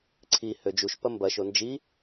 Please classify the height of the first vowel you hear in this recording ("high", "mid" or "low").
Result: high